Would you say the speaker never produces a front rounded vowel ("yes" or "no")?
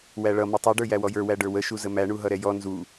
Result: yes